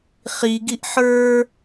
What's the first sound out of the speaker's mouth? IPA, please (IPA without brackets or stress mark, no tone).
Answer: χ